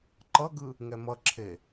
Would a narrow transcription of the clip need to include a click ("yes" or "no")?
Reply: yes